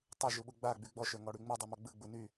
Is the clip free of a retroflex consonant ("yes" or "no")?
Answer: no